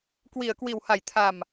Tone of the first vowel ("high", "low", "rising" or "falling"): low